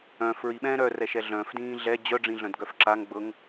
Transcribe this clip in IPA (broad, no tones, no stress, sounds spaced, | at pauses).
œ̃ f ɹ i ɓ ɛ̃ː ɾ œ r ɛ ʃ ɛ ɮ œ̃ f d ĩː ɮ ɛ d͡ʑ œ ɖ͡ʐ ĩ ɮ œ̃ d ɡ œ f ǁ a ŋ ɡ͡b ɤ ŋ